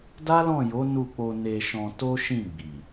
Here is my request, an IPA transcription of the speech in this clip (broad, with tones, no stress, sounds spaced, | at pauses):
d a˦ l ɔ̃˦˨ j o˨˦ n u˦˨ k͡p o˧ n e˧ ʃ ɔ̃˧ t o˦ ʃ ĩ˦˨ ɡ͡b i˨